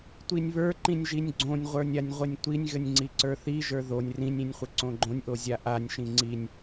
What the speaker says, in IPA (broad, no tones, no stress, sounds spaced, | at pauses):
tʷ i nʲ β ə˞ ǃ ĩ nʲ ʒ i nʲ ɡ͡ǀ õ nʲ ʁʷ ə˞ nʲ a nʲ ʁʷ ɘ nʲ tʷ i nʲ ɣ ɘ nʲ ŋ͡ǀ i ǀ ə˞ θ i ʒ ə˞ ð o nʲ r ĩ nʲ ĩ nʲ χʷ ɘ ǀ õ ɡ͡ǃ õ nʲ ʔ o zʲ a ʔ a nʲ ʃ ĩ ŋ͡ǀ i nʲ